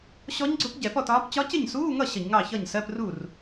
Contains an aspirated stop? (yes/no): no